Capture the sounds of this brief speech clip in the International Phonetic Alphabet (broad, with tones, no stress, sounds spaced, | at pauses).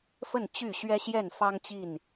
f ə˥˨ n t͡ɕ y˥˨ ɕ ɥ ɛ˦ ɕ j ɛ˥˨ n f ɑ˦ ŋ t͡ɕ i˥˨ n